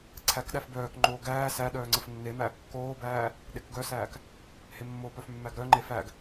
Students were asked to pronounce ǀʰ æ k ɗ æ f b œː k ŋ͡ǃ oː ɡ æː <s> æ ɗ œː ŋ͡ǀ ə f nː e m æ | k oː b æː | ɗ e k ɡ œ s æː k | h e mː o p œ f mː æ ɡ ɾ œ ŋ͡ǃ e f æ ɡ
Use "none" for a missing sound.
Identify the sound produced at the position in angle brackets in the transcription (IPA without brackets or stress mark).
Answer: s